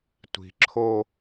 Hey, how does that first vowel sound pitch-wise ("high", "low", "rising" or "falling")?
low